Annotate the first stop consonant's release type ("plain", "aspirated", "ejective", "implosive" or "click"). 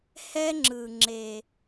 click